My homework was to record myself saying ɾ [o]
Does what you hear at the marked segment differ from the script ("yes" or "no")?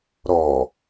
yes